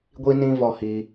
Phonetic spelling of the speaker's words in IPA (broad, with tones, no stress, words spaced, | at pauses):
ɡʷi˦nĩ˦ vɔ˦hi˧